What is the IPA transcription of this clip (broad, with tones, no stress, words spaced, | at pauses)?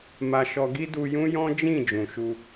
ma˧ ʃɔ˧ɡi˦ du˧jũ˦jɔ̃˦ d͡ʒĩ˦˨ d͡ʒũ˨ʃu˧